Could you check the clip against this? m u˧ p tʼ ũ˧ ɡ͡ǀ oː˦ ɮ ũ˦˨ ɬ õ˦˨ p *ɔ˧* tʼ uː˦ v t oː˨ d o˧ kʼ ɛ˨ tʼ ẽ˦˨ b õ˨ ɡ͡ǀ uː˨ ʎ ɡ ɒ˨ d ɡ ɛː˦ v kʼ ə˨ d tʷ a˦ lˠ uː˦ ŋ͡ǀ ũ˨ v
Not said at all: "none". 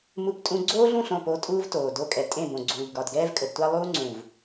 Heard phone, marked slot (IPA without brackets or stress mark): o˧